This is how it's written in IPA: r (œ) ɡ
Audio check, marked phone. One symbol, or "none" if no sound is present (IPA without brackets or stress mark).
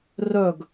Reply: œ